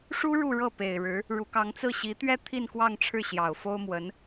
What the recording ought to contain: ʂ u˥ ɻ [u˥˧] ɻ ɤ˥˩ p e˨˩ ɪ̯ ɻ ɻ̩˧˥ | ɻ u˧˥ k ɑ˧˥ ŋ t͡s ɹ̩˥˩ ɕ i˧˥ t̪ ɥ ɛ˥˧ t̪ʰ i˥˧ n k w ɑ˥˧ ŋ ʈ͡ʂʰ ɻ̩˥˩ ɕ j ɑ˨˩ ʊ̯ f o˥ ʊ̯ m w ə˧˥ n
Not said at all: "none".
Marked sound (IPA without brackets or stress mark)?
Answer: u˥˧